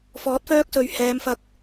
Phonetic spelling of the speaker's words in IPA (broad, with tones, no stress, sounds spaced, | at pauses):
f ɔː˨˥ t̚ f œː˥ k̚ s ɵ˨˧ ɥ h ɛː˨˧ m f ɐ˧ k̚